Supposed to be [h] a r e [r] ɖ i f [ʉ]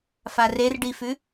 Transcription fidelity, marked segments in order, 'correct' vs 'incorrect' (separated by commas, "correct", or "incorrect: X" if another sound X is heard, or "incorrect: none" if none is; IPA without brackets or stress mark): incorrect: f, correct, correct